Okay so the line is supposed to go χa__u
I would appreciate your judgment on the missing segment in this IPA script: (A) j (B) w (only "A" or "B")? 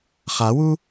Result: B